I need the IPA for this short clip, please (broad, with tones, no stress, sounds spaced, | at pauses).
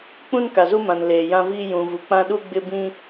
k͡p ũ˦ n k a˨ z u˦ m ã˨ n l eː˨ j ã˦ v iː˦ j ũ˨ v u˨ k͡p ã˦ ɗ u˦ ɡ͡b ɪ˦ b ĩ˦